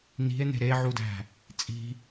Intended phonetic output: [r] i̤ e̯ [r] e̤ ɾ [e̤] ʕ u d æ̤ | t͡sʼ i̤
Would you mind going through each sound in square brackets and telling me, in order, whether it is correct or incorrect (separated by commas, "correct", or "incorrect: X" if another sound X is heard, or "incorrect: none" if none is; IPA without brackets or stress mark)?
incorrect: n̪, incorrect: n̪, incorrect: e